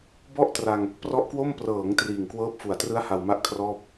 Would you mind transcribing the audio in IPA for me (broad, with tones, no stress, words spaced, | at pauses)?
bɔ˥˩ʔtra˧ŋ | prɔ˦˥ʔkwo˥˩m prɤː˩˦ŋ triː˨˩ŋkwɤː˦˥p̚fu˨˩a̯trɯ˦˥a̯ ha˧wma˦˥ʔ kʰrɔː˥˩p̚